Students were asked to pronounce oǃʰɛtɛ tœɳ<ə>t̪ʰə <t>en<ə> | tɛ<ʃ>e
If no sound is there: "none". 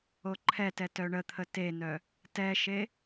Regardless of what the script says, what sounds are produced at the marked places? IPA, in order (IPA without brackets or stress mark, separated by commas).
ə, t, œ, ʃ